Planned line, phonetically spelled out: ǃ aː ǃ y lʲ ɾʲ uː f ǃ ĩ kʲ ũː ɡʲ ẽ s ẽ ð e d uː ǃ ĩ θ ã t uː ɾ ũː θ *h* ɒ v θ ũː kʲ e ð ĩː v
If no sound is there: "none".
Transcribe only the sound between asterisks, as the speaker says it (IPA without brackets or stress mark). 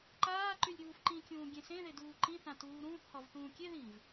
h